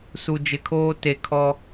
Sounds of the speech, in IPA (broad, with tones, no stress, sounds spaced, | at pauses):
s u˨ d͡ʒ ɪ˨ kʰ oː˦ t e˨ kʰ ɔ˦